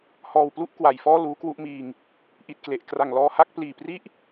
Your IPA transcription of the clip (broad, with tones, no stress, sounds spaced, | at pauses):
h ɔː˨˩ w p l u˥˩ ʔ k w a˨˩ j f ɔː˥˩ l uː˦˥ k w u˦˥ ʔ m iː˧ ŋ | ʔ i˨˩ t̚ k l e˨˩ ʔ k r a˨˩ ŋ l ɔː˧ h a˥˩ k̚ p l iː˨˩ p r i˥˩ ʔ